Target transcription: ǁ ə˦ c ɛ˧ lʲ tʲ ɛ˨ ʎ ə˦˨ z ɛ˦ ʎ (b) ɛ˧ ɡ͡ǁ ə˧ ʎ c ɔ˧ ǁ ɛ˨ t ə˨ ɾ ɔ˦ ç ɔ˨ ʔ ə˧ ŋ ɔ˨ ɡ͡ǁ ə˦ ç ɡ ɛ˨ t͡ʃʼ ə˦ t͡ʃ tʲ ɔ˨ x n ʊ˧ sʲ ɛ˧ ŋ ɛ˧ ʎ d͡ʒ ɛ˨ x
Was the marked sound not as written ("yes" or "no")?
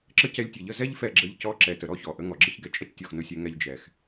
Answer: yes